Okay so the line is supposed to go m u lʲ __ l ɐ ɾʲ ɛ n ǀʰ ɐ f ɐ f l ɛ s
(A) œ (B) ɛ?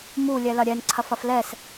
B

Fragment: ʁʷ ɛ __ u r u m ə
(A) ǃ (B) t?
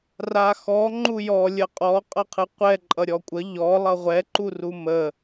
A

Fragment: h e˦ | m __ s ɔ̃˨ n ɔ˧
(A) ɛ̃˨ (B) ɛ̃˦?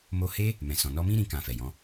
A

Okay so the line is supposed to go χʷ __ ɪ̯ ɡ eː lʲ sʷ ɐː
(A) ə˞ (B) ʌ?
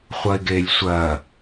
B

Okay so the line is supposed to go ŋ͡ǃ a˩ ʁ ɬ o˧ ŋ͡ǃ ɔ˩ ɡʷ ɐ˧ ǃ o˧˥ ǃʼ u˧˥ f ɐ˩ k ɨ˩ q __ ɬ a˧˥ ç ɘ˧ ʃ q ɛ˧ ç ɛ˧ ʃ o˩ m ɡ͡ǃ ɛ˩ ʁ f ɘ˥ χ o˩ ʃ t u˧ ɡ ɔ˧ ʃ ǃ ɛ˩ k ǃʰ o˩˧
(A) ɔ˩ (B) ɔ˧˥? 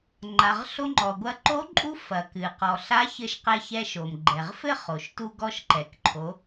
A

